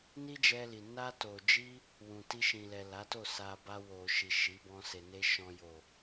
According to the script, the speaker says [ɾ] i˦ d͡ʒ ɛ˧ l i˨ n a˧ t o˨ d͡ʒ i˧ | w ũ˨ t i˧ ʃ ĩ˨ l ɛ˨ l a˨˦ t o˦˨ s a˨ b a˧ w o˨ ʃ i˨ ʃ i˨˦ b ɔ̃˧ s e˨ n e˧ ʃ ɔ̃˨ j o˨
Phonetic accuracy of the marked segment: incorrect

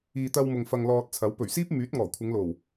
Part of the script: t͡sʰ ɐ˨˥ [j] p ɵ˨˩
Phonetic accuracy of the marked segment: incorrect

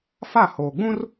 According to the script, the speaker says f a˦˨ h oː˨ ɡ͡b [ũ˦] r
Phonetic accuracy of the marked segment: correct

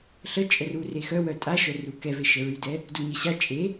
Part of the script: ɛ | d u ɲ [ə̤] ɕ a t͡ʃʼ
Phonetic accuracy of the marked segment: incorrect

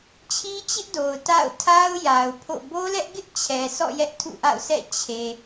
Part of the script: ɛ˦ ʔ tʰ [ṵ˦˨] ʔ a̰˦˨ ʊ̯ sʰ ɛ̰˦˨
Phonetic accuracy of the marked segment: correct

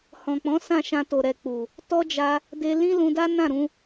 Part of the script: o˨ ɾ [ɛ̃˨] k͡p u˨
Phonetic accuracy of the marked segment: incorrect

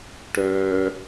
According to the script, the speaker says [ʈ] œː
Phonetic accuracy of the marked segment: correct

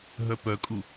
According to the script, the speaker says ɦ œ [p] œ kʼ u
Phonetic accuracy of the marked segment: correct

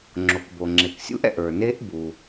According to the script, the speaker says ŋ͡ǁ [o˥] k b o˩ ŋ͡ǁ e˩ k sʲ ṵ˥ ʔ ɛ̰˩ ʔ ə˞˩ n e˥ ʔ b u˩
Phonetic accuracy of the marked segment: incorrect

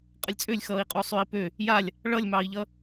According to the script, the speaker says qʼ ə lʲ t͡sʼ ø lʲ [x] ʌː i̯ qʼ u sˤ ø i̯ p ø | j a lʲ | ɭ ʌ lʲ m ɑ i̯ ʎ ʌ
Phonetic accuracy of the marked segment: correct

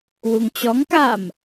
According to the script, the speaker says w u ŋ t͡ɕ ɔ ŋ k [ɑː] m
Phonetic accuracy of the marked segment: incorrect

